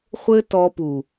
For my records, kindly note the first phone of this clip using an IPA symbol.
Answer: χʷ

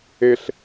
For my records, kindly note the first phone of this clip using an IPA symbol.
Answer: e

